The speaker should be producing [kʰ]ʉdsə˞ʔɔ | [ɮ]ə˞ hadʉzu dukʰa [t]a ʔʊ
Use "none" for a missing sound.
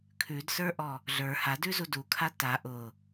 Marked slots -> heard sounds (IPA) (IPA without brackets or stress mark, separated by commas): kʰ, ɮ, t